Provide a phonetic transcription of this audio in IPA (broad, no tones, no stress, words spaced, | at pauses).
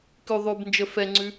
kʉ ðˤʉbnd͡ʒə fɛŋ͡ǀʉ